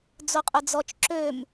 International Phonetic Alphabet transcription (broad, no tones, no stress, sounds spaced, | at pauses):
d͡z o qʼ ʊ d͡z ɔ t͡ʃ ǁ ø m